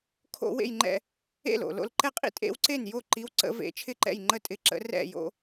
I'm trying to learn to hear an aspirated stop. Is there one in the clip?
yes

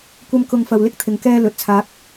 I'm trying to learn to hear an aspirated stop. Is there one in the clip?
yes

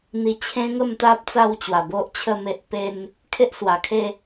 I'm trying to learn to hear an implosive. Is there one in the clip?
no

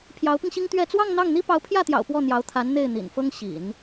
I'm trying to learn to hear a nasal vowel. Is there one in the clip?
no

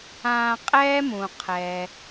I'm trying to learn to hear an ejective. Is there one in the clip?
yes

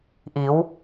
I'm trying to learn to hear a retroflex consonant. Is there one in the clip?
no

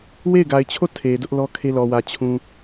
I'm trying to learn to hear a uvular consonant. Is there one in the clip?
no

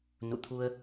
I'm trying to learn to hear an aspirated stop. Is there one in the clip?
yes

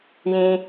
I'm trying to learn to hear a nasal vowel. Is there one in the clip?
yes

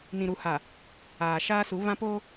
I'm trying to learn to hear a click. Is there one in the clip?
no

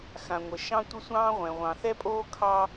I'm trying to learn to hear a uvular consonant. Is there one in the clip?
yes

